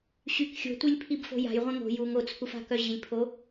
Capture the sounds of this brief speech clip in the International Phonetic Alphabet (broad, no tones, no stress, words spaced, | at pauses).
ɕyk xʲo̤tʷilʲ pʰibfo̤ja̤jʁʷɛ̃ ŋo̤ juŋ ot͡sʰufa̤ kœʑilʲpʰo